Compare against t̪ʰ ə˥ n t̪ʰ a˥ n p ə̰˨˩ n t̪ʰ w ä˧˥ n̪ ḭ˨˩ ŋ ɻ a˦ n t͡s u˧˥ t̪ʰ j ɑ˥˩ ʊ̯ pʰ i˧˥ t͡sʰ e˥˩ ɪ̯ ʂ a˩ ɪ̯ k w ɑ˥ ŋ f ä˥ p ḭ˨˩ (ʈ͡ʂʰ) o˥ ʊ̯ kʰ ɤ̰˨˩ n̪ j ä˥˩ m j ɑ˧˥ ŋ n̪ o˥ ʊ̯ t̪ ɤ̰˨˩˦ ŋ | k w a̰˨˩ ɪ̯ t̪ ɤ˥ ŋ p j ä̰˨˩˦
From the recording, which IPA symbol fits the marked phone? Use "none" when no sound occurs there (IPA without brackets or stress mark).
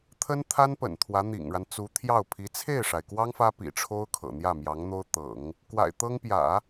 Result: ʈ͡ʂʰ